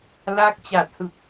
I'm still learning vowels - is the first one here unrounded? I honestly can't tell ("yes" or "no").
yes